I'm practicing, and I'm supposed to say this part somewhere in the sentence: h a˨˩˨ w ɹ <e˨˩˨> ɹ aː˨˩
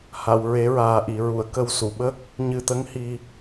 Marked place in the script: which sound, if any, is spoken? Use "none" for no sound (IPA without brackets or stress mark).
e˨˩˦